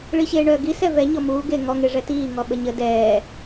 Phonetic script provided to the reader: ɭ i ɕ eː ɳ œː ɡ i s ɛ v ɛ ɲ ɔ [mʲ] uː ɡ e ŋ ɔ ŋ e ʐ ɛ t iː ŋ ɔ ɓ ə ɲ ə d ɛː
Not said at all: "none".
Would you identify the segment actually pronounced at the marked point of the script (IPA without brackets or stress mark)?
m